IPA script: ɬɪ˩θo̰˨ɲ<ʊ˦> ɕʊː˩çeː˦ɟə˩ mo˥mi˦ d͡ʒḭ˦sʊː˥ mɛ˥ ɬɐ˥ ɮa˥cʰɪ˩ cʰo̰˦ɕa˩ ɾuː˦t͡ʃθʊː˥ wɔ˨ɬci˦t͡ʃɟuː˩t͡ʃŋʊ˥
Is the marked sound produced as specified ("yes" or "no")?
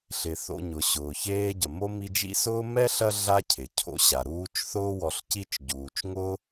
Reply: no